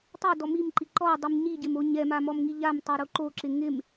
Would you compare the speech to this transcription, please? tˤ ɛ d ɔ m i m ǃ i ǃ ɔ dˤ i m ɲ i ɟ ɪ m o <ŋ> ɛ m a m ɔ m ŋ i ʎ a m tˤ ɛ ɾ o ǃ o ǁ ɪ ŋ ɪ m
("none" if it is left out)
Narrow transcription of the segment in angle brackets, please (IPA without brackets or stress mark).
ɲ